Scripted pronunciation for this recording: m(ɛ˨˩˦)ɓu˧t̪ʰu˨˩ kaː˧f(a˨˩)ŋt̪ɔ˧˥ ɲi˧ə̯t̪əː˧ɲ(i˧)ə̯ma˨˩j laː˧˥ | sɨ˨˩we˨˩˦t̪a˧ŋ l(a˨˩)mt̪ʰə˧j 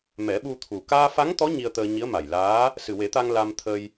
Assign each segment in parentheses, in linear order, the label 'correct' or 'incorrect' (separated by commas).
correct, incorrect, incorrect, incorrect